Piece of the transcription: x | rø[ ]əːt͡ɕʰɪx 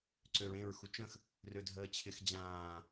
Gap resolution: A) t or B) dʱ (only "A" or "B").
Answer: B